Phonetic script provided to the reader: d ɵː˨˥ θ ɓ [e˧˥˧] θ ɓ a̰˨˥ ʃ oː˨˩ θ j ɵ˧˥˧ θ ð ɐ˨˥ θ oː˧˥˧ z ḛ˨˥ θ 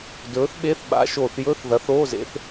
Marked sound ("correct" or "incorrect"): correct